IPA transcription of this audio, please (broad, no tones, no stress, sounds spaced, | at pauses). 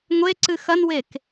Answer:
ŋʷ e ǀ ɨ x ɐ n w e k